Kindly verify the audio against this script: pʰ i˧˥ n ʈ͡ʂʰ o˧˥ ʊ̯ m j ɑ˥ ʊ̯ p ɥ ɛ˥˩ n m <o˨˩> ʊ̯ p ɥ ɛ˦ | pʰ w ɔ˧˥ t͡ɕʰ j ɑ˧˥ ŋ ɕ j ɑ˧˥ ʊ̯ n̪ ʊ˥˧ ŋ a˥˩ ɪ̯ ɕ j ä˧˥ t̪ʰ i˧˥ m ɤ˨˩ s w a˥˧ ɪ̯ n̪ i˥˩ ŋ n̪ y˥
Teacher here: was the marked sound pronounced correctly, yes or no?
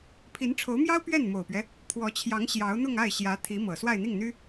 yes